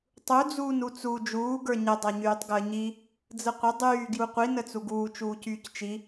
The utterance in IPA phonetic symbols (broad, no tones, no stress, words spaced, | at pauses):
tˤu d͡zuːnut͡su d͡ʒuː ɡə˞ɲə dˤaɲyːtˤɡəːɲi | d͡zəqʷə dˤyː ɡjuqʷi nət͡suɡuː t͡ʃuːcyːct͡ʃi